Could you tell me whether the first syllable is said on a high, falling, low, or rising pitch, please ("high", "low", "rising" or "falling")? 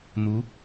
rising